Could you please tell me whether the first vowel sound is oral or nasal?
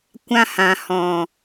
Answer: nasal